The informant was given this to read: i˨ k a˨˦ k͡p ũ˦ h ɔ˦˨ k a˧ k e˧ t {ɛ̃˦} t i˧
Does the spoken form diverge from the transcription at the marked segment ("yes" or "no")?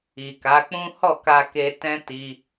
yes